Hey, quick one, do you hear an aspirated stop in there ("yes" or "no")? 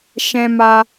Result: no